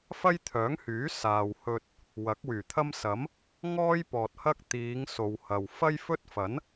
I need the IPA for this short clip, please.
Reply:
f ɐ˥ j t̪ʰ œː˨˥ ŋ h yː˨˥ s aː˨ w h ɵ˧ t̚ | w ɐ˨˥ k̚ w yː˨˩ t̪ʰ ɐ˥ m s ɐ˨˥ m | ŋ ɔː˥ j p ɔː˨ t̚ h ɐ˥ k̚ t̪ iː˨˧ ŋ s o˨ w h ɐ˨ w f ɐ˥ j f ɵ˥ t̚ f ɐ˨˥ n

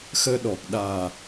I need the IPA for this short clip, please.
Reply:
x əː˧ ɗ ɔ˨˩ k̚ ɗ aː˨˩

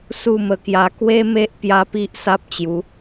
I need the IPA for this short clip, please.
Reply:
s u˥˧ m ə˧ k j a˧ k w e˦ m e˦ ʔ p j a˦ p i˦ ʔ s a˦ p̚ t͡ɕ j u˨˦

